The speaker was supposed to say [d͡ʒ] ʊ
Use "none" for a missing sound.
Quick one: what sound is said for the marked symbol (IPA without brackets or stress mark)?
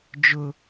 d͡ʒ